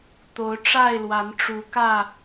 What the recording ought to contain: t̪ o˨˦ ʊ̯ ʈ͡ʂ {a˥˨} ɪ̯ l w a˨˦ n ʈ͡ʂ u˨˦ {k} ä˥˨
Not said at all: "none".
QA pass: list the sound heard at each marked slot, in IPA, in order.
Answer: a˥˨, k

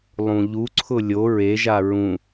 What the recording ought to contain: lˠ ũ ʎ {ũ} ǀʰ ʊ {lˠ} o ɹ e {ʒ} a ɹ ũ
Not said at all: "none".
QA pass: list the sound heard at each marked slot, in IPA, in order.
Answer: u, lʲ, ʒ

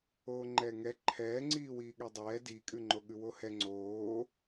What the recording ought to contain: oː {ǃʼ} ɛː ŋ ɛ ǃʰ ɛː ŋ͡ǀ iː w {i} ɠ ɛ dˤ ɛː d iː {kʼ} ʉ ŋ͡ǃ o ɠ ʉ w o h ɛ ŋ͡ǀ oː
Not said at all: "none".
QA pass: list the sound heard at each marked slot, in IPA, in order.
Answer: ŋ͡ǃ, iː, kʼ

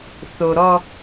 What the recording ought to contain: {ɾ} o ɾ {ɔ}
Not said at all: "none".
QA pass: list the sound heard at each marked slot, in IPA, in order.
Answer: θ, ɔ

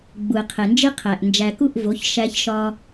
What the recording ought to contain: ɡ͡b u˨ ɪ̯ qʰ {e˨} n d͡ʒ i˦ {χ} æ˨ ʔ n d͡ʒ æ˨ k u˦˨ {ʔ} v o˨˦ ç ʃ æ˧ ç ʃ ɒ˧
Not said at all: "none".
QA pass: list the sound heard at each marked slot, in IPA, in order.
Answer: e˨, qʰ, ʔ

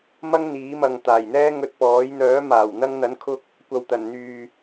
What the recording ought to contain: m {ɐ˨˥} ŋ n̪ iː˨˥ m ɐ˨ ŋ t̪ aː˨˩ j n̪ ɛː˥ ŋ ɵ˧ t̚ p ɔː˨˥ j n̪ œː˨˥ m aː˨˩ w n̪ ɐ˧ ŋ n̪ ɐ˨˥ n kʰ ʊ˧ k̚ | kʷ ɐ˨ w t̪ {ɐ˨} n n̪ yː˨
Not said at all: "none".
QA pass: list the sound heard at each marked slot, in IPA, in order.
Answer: ɐ˥, ɐ˨˩

